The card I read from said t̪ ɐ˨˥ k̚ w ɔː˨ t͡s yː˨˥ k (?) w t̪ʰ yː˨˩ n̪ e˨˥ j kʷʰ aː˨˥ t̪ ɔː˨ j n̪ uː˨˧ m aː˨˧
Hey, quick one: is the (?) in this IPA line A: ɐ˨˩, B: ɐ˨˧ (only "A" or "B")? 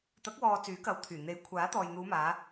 B